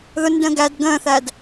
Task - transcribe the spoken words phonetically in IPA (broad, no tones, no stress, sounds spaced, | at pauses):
ð ʊ n d ə̃ː ɡ æ d ɡ ə̃ː θ æ d